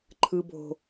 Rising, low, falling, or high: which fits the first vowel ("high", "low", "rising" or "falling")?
low